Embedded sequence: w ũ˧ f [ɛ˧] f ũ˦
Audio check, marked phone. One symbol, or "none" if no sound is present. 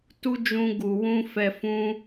ɛ˧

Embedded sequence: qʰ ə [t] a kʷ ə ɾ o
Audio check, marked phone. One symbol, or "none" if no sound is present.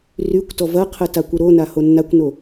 t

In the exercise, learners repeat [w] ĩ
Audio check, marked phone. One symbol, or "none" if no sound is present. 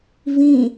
v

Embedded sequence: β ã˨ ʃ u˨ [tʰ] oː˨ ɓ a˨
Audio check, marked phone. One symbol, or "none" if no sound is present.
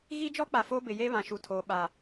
tʰ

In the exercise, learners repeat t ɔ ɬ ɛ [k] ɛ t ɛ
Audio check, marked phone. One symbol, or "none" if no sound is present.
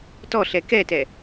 k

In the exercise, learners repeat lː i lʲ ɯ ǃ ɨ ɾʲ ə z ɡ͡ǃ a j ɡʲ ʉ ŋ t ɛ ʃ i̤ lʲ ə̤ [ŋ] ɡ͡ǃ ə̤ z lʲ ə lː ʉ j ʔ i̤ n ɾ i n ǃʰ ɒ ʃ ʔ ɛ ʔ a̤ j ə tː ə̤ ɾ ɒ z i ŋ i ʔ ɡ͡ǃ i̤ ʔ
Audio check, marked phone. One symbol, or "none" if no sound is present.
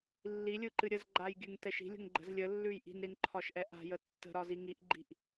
ŋ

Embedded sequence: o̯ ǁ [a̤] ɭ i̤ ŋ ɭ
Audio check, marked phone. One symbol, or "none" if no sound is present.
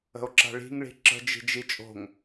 a̤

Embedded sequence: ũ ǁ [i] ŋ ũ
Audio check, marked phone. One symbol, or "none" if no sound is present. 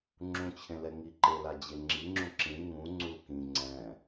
ĩ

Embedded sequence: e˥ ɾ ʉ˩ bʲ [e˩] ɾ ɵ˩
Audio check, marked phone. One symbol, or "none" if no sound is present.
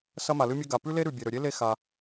e˩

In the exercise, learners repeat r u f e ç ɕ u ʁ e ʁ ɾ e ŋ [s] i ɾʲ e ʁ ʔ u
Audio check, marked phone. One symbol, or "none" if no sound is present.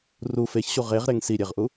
s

